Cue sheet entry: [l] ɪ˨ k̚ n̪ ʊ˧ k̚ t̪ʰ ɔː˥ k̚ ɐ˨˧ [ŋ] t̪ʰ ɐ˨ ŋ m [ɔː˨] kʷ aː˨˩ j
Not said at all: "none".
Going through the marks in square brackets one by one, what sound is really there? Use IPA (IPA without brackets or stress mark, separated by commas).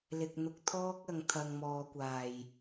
l, ŋ, ɔː˨